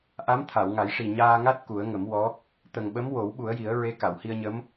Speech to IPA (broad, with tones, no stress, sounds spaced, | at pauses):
ʔ a˧˥ m t̪ʰ a˨˩˨ w ŋ a˨˩˦ j ʂ i˨˩ ɲ aː˧ ŋ a˦˥ t̚ k u˨˩˦ ə̯ ŋ ə˨˩˦ m w ɔ˧˥ | t̪ ə˨˩ ŋ ɓ ə˧˥ m w o˨˩˦ w ɓ u˨˩˦ ə̯ j i˨˩˦ ə̯ ɹ e˧˥ k a˨˩˨ w h i˧ ə̯ ɲ ə˧˥ m